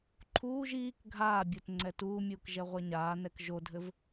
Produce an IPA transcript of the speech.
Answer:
ǃʰ uː ʒ iː k ɡʱ aː bʲ o t ŋ͡ǀ ɛ t uː mʲ uː k ʒ ɛ ʁʷ ɛ ɲ aː n ɛ k ʒ o dʱ ɘ v

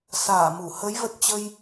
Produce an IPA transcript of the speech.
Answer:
s aː˧˩ m u˧˩ h ə˨˦ j v ə˨˩ t̚ t͡ɕ ə˧ j

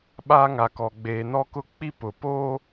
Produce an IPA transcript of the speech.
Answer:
ɓ aː˦ ŋ a˨ k ɔ˨ ɡ͡b eː˨ n ɔ˦ k ʊ˦ k͡p i˦ p ʊ˨ p oː˦

